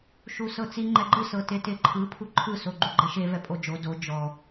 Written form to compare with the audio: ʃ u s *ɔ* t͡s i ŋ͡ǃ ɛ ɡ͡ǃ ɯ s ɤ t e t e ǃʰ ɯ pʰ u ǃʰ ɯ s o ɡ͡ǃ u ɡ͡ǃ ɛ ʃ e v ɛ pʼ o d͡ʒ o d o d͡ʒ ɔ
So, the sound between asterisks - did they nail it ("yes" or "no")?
no